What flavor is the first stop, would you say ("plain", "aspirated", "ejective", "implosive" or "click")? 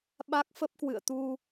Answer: implosive